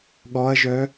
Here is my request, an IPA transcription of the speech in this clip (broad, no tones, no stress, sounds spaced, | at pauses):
ɠ ɔ ɐ̯ ʒ œ